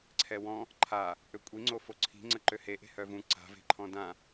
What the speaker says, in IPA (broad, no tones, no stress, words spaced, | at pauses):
ǀʰɛwɔ̃ | ǃʰa | ʔøkʷʼiŋ͡ǀo foǀʰi̤ŋ͡ǀəǃø he ʔe̤hœvũ ǀa̤ve̤ ǃʰɔ̃dã